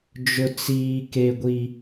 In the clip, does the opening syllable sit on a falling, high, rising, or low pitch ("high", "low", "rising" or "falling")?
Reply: high